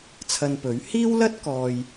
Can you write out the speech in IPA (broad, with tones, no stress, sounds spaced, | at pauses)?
t͡sʰ ɐ˧ n p ɵ˨˥ ɥ h iː˥ w l ɐ˥ t̚ k ɔː˨ j